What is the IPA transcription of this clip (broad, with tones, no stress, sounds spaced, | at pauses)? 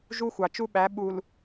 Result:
ʒ u˦ xʷ ɑ˨ t͡ʃ u˦ ɓ æ˨˦ ɓ u˨ l